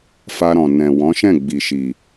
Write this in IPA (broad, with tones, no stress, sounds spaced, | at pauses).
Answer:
f a˧ ɾ ɔ̃˨ n ɛ̃˨ w ɔ̃˨˦ ʃ ɛ̃˦˨ ɡ͡b i˨ ʃ i˨